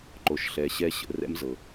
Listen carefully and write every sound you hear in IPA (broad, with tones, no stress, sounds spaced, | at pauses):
ǃ o˨ ʃ ɬ ɛ˨ ɕ ɛ˧ ɕ ə̰˨ r ɛ̰˦ m z ɤ˨